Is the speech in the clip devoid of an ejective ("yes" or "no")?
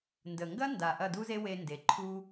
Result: yes